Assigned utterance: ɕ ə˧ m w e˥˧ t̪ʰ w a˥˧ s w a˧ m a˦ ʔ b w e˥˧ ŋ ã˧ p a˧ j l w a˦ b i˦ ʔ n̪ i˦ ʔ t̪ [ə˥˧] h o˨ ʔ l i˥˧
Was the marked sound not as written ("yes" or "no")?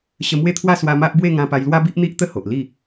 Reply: no